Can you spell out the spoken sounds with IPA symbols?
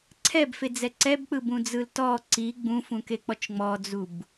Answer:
ǀʰ ɛ b f e d͡z ɛ ǀ ɛ b k͡p ɯ b ũ d͡z ɯ l t ɔ ǀ i ɡ͡b ũ f ũ k e k͡p ɔ t͡ʃ ŋ͡m ɔ d͡z u b

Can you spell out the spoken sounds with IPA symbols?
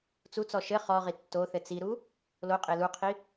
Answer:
t͡s u t͡s ɔ ʃ ɘ χ ɔ ʁ i tː o θ ɘ t͡s i ɾ u | l o qʼ e l u qʰ i

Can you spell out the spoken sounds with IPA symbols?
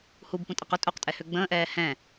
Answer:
h u b p ũ tʼ ɐ q ʊ tʼ u q tʼ ɛ h ø ɡ͡b ə̃ː ʔ ɛː h ɛ̃

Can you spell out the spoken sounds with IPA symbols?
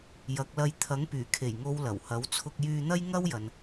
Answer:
j ɐ˨˥ k̚ l ɐ˧ j t̪ʰ ɐ˨˥ ŋ p yː˨˩ kʰ e˨˩ j ŋ o˨˧ w l ɐ˨˩ w h ɐ˨˥ w t͡sʰ ʊ˧ k̚ j yː˧ n̪ ɐ˥ j ŋ ɐ˥ w j ɐ˨ n

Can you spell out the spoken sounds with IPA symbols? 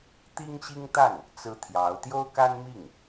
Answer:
t̪ i˥ ŋ ɕ i˥ ŋ t̪ a˥˩ n | t͡s ɹ̩˥ t̪ʰ j ɑ˧˥ ʊ̯ t̪ j o˥ ʊ̯ k a˥ n m i˥˩ ŋ

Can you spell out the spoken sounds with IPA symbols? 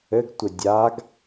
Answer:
ɘ ɡ tʷ ɘ dʲ a ɡ

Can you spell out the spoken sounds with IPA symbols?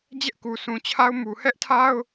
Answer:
d͡ʑ ɛ˦ ʔ k u˨ sʰ ũ˨ t͡ɕʰ a˦ ʊ̯ m u˨ h ɛ˦ ʔ tʰ a˦ ʊ̯

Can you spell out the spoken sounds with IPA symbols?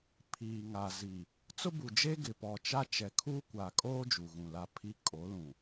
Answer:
pʰ iː˨ ŋ a˨ z i˨ | t͡s ʊ˦ b u˨ d͡ʒ e˦ ɡ ɪ˨ p ɔ˨ t͡ʃ a˦ t͡ʃ ɛ˨ kʰ uː˦ kʷ a˨ kʼ oː˦ d͡ʒ u˨ ɣ ũ˨ l a˦ pʰ i˦ kʼ o˨˦ l ũ˨

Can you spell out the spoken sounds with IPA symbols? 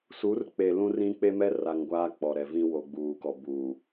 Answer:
s u˨˦ r k͡p e˨ l ũ˦ r ĩ˦ k͡p e˦ m ɛ˦ r a˨ ŋ ɡʷ aː˦ k͡p ɔ˨ ɾ ɛ˨ v ĩ˦ w o˨ ɡ͡b uː˨ k ɔ˨ b uː˨

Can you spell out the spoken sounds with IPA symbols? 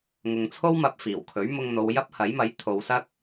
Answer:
ŋ ʊ˨ ŋ t͡sʰ o˥ w m ɐ˧ p̚ f iː˨˩ w kʰ ɵ˨˥ ɥ m ʊ˧ ŋ n̪ o˨˧ w j ɐ˥ p̚ h ɐ˨˥ j m ɐ˨˥ j t̪ʰ o˨˧ w s ɐ˥ k̚

